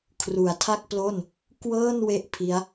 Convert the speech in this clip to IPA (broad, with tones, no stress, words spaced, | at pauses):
kʰru˩˦a̯tʰa˥˩k̚plo˥˩n | kwɤː˥˩n we˥˩ʔpʰi˦˥a̯